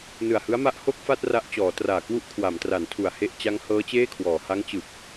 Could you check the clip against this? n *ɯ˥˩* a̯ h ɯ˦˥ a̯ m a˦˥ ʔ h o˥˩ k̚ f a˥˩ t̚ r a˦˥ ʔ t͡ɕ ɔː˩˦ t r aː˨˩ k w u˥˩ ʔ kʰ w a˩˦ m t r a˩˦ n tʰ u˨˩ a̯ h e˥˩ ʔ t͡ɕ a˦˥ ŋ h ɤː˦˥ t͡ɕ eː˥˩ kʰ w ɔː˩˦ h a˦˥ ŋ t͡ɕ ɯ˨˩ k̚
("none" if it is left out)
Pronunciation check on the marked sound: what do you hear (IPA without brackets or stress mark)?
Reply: ɯ˨˩